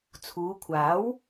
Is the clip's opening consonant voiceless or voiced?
voiceless